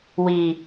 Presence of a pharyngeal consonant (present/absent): absent